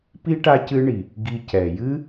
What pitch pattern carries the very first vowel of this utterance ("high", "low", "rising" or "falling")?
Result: high